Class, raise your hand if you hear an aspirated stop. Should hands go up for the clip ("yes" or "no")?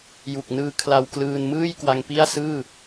yes